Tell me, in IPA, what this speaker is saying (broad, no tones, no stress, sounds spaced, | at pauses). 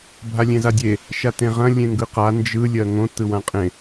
bʱ a lʲ ẽ z a dʲ e | ʃ a t ẽ ʁ ɐ̃ lʲ ẽ ŋ ɡ ɯ q a n d͡ʒ ɯ lʲ ɜ ŋ õ t ɯ w ã qʼ ẽ